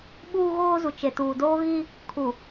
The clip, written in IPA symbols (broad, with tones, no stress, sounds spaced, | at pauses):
ɓ uː˦ ɣ oː˦ z u˨ t͡ʃ e˨ t uː˨ d oː˦ ɣ i˦ | kʰ u˨